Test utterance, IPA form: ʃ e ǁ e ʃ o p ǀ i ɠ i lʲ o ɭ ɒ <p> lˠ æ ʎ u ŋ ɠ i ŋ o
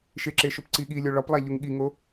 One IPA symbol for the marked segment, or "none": p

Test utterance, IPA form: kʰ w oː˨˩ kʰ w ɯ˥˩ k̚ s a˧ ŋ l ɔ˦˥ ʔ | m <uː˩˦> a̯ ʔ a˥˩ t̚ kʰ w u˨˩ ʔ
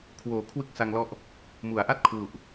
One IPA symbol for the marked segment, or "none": u˩˦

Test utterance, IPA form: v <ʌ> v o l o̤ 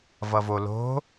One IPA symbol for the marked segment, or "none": ʌ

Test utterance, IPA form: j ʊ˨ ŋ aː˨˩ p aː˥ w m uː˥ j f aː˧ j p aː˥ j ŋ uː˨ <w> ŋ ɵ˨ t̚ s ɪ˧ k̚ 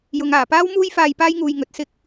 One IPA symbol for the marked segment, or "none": j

